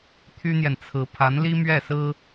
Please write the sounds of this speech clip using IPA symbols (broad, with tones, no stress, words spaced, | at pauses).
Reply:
t̪ʰy˥n̪jɛ˨nt͡sʰɹ̩˧˥ pʰa˧˥nli˥mɥɛ˥˩sɹ̩˥